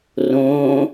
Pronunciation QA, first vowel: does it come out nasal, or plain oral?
nasal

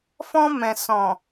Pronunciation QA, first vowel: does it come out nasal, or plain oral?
nasal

